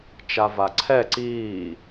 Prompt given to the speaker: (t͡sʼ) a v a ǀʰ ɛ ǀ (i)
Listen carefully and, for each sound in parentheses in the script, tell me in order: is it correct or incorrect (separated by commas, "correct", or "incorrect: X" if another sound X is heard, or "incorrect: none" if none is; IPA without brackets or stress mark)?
incorrect: t͡ʃ, incorrect: iː